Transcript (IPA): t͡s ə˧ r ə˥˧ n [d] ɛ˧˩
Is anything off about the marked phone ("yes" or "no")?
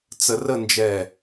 yes